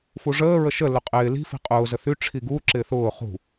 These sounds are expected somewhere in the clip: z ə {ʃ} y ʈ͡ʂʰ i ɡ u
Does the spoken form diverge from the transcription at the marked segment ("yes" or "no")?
yes